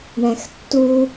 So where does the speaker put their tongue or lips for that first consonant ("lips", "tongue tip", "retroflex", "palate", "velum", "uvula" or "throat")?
retroflex